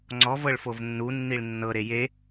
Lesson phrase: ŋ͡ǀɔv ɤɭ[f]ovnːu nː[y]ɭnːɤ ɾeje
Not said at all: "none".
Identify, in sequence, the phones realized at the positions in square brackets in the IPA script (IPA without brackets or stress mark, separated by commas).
f, i